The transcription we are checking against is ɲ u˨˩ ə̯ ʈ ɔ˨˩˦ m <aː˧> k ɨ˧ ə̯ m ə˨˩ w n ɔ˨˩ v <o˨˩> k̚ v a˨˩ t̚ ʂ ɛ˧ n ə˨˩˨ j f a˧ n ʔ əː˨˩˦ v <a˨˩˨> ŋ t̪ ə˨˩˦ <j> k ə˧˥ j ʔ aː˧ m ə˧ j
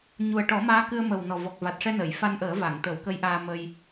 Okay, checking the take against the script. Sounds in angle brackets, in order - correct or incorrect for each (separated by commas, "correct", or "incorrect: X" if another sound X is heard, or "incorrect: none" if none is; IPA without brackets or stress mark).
incorrect: aː˧˥, incorrect: ɔ˨˩, correct, incorrect: w